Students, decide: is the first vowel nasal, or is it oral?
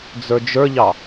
oral